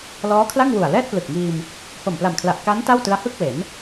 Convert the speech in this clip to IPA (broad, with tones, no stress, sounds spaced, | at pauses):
l ɔː˦˥ kʰ l a˥˩ ŋ w u˨˩ a̯ l ɛː˥˩ t̚ p l ɯ˨˩ k̚ ŋ iː˧ m | h o˨˩ m p l a˨˩ m kʰ l a˨˩ ʔ k a˦˥ n t a˥˩ w t ɯ˦˥ a̯ h ɯ˥˩ k̚ w e˩˦ n